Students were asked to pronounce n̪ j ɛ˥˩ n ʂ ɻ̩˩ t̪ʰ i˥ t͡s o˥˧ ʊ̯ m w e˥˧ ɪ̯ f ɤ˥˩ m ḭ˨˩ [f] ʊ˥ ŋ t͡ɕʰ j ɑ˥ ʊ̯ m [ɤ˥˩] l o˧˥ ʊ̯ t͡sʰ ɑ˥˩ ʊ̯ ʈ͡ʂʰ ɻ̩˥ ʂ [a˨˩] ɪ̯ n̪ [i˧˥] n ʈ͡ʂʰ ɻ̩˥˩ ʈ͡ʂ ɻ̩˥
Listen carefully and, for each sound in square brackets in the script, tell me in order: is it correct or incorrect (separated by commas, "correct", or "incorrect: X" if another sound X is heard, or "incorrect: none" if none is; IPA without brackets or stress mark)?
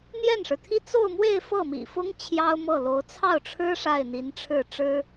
correct, correct, incorrect: a˥˩, correct